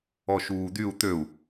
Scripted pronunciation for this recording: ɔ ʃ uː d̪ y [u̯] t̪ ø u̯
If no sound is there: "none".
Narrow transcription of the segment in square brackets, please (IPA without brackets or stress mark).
u̯